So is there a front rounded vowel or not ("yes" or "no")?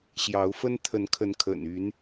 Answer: yes